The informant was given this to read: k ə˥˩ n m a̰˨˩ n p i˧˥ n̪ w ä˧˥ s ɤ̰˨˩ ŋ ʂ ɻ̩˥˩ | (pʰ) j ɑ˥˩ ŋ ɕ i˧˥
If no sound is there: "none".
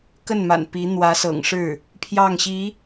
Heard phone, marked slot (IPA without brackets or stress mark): pʰ